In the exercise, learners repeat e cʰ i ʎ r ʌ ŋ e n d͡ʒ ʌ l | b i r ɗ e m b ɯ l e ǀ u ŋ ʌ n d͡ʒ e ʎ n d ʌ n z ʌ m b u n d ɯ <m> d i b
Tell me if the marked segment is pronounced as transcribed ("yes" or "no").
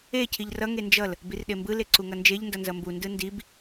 no